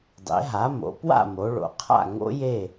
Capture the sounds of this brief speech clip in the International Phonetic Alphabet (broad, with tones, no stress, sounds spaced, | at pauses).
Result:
dˤ ḛ˩˧ ɦ a˩˧ m o̰˩˧ p w a̰˥˨ m o˩˧ ɭ o̰˩˧ qʰ a̰˥˨ ŋ o̰˦˥ j e˥˨